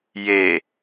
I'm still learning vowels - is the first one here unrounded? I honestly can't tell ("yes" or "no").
yes